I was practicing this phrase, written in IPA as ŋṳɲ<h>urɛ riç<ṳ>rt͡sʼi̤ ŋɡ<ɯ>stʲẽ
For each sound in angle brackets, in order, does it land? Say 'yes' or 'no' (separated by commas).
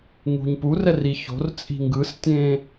no, no, yes